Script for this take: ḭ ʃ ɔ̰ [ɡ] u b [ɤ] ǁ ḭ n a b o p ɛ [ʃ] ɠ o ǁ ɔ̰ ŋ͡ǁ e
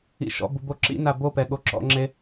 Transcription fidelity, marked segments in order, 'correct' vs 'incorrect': incorrect, incorrect, incorrect

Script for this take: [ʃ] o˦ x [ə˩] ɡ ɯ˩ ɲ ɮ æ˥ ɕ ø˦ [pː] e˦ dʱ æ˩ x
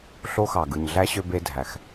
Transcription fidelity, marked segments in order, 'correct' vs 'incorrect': incorrect, incorrect, incorrect

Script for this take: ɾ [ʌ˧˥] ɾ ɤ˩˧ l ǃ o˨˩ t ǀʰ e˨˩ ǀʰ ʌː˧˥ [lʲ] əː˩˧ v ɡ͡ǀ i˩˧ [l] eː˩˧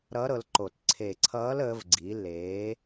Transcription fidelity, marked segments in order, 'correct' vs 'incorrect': correct, incorrect, correct

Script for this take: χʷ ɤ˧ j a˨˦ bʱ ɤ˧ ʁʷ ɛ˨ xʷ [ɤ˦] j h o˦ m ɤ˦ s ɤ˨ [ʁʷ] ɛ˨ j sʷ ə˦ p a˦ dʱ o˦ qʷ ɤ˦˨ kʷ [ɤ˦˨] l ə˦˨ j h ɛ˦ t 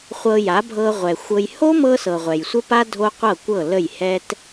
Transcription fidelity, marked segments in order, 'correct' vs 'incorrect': incorrect, correct, correct

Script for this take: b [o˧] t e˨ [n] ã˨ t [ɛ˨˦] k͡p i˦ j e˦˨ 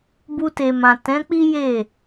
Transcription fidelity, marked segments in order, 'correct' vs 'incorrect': incorrect, incorrect, incorrect

